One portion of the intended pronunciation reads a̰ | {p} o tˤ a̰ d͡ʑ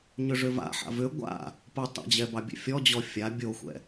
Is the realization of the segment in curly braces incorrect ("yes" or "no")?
no